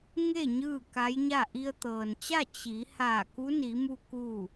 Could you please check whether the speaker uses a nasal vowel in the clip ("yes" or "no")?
no